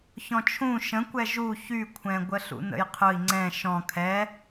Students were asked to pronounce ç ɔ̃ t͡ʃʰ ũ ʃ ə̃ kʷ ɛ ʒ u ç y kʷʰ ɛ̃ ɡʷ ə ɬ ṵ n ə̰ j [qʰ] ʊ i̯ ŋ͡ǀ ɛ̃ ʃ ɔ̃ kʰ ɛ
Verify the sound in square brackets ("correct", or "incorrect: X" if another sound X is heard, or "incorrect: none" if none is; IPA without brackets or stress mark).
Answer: correct